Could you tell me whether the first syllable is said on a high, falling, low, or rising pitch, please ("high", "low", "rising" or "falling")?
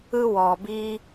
high